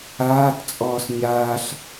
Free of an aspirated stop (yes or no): yes